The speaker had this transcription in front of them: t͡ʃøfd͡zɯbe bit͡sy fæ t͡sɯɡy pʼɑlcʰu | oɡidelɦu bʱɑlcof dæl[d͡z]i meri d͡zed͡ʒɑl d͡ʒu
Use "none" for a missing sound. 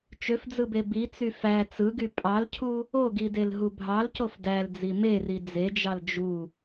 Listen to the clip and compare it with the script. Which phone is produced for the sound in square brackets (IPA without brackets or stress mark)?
d͡z